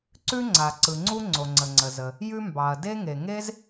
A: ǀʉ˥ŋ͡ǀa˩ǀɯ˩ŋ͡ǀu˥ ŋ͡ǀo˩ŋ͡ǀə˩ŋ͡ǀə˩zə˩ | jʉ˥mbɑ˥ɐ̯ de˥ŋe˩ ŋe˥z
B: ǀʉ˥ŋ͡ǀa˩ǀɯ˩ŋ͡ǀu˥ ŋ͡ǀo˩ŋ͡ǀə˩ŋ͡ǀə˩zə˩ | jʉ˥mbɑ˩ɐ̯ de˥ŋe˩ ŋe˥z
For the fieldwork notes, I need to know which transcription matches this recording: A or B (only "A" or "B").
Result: B